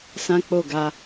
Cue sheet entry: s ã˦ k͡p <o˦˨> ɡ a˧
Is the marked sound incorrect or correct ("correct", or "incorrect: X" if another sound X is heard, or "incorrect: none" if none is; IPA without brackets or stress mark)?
correct